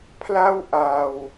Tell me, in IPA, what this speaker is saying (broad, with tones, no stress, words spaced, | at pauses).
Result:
pʰla˥˩wʔa˧w